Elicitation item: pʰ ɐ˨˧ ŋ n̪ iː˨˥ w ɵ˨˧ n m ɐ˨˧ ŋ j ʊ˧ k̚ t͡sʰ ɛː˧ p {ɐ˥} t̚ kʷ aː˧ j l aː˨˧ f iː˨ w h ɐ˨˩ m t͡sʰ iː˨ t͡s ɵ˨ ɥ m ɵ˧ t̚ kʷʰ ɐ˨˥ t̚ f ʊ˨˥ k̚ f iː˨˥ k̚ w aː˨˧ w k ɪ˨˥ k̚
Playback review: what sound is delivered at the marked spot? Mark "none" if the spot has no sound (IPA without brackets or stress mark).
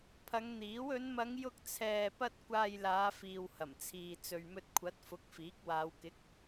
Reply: ɐ˥